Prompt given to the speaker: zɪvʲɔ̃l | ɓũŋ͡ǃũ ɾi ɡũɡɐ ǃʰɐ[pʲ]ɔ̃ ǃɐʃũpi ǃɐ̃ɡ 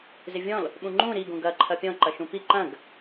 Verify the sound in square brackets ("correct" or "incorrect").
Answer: correct